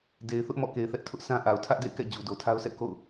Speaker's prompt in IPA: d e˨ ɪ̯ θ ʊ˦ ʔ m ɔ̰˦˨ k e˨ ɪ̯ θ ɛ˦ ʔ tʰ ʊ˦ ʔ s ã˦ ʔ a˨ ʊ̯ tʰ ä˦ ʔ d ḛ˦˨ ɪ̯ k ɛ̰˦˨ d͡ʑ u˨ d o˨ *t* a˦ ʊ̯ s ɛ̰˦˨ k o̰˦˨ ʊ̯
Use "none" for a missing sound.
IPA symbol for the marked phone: tʰ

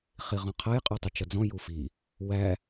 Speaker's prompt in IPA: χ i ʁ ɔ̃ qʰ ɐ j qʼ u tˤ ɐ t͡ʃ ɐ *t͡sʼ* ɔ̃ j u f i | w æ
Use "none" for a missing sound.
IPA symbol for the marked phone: d͡z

